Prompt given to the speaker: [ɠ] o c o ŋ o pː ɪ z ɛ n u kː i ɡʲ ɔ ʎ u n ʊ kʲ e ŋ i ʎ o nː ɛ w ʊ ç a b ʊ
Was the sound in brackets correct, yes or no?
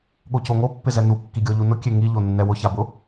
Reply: yes